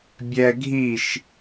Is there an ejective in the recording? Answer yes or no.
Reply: no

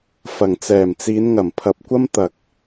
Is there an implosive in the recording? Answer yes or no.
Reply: no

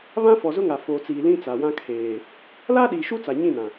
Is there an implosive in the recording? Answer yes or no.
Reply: yes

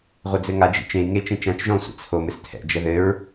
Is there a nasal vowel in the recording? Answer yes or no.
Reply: yes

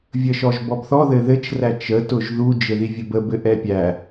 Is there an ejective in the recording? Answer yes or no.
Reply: no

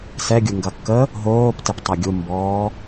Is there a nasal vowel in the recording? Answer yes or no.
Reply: no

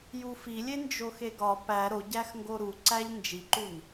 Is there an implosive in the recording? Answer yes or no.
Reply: no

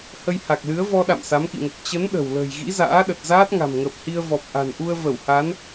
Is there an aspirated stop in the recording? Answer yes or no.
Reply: no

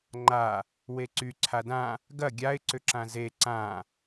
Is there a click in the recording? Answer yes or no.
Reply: yes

